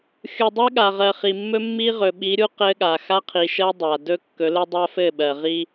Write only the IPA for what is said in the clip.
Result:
xʲ u˨ dˤ ɜ˦ ɠ a˨ ʁ ɜ˨ χ i˨ mː ɵ˦ mː i˦ ʁ ɵ˨ ɓ i˨˦ ɾʲ u˦ q ɘ˦ ɠ a˨ x a˦ qʰ i˨ ʃ ɜ˦ dˤ a˨ d ɵ˦ kː ɵ˨˦ l ɘ˦ dˤ a˦ f ɘ˦˨ ɓ ɜ˨ ʁ i˦

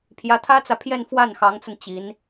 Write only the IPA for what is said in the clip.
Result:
pʰ j ä˧˥ t̪ʰ ä˥ t͡s ä˨ pʰ j ɛ˥˧ n f w a˥˩ n x ɑ˧˥ ŋ t͡s ə˧ n t͡ɕ i˧˥ n

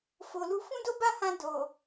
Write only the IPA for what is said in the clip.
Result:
f o˨ l u˧ f ũ˦ d o˦ b a˦˨ h ã˧ d o˨

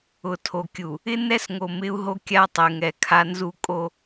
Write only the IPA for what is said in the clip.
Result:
ʊ˨ tʰ o˨ kʲ u˨ | ɪ˦ n ɛ˦ s ŋ o˨ m ɪ˦ u̯ ɦ o˦ kʲ a˦ tˤ e˨ ŋ ɛ˨ kʰ a˦ n z u˦ kʼ o˦

